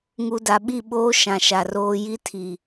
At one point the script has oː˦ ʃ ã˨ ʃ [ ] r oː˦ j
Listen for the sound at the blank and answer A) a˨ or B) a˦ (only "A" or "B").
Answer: A